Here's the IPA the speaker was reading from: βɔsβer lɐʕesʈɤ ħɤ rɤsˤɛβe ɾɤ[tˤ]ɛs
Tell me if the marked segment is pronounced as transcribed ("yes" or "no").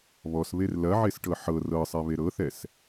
no